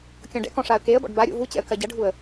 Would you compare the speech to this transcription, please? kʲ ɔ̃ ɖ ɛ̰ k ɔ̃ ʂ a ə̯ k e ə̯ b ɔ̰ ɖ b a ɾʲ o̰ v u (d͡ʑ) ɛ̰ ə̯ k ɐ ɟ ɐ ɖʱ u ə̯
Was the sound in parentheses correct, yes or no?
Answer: no